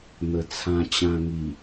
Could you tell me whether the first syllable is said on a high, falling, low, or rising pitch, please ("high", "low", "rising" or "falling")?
low